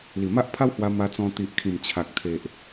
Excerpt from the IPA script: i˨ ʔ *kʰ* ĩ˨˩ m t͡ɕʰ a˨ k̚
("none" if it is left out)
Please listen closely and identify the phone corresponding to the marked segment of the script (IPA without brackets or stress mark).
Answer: kʰ